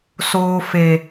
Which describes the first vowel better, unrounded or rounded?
rounded